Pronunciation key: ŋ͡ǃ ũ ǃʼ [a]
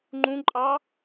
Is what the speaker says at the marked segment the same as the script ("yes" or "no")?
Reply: no